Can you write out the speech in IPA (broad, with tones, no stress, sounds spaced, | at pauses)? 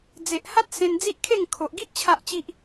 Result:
d͡z e˨ ʔ h a˦ t̚ s ẽ˧ n d͡z i˦ ʔ kʰ e˥˧ ŋ kʰ o˨ ʔ ɡ i˦ ʔ t͡ɕʰ a˦ ʔ t͡ɕ i˦ ʔ